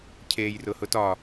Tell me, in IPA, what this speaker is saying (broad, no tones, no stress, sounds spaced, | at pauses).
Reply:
cʰ eː j r ʊ h ʊ t ɒ